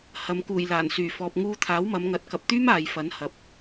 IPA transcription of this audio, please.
h ɐ˨ m k uː˨˩ j l aː˨˩ n s yː˨˩ f ɔː˨ p̚ ŋ uː˧ t̪ʰ aː˨˥ w m ɐ˨˧ m ŋ ɐ˨˥ t̚ k ɐ˨ p̚ t̪ yː˥ m aː˨ j f ɐ˨˥ n h ɐ˨ p̚

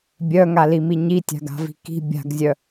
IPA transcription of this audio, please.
bʲ œ ŋ a l i m i ɲ i tʲ a̤ ɡ a̤ v i̤ k i̤ bʲ a̤ ɡ zʲ œ

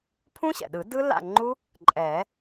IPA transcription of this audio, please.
pʰ ũ˦˥ ɕ ɛ̰˩ ɗ ɯ˨˩˦ d ɯ˦˥ l a̰˥˩ ŋ͡ǃ u˦˥ | ǃʼ ɛ˨˩˦

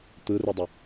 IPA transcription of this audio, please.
t̪ ɯ r e dˤ ə

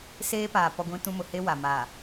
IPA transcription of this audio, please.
s eː˦ p aː˨ p ɔ˦ ɡʷ ĩ˦ t ũ˦ m ʊ˨ h e˦ w a˨ m a˨

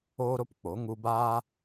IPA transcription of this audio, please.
oː˦ ɾ o˦ p k͡p o˨˦ ŋ u˧ b aː˦

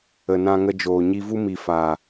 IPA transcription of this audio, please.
ə˨ n ã˧ ŋ ə˧ d͡ʒ oː˨ ɲ i˧ v u˦ m i˨ f aː˨

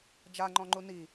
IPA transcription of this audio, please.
d͡ʒ a ŋ͡ǃ ɔ̃ ŋ͡ǃ u n i

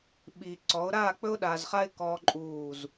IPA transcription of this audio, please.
ɓ i˨ ǀ ɔ˨˦ ʊ̯ ɾ aː˦˨ k͡p ɵ˦ ʊ̯ ɗ aː˨ z χ a˦ ɪ̯ k ɔː˦ ǃʼ uː˦˨ z

